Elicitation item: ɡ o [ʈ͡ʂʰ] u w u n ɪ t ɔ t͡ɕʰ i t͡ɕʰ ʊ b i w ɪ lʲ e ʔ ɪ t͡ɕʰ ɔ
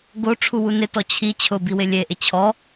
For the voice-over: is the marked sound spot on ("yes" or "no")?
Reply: yes